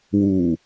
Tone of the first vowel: low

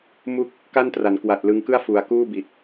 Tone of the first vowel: falling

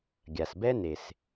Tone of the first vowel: low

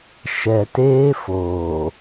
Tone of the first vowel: low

